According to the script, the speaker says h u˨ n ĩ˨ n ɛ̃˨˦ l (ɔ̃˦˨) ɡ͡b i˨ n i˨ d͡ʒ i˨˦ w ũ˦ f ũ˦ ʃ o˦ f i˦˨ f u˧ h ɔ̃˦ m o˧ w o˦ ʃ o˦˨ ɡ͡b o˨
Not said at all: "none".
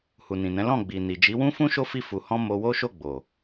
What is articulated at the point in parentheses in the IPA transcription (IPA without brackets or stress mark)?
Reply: ɔ̃˦˨